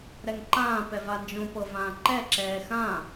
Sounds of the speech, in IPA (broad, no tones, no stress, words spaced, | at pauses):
ɾɛŋǃãː pɛvand͡ʒõpɤ vãːǃɛ ǁɛːxã